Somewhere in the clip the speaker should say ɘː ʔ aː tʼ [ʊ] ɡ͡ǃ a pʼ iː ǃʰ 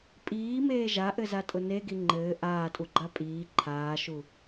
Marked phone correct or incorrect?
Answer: incorrect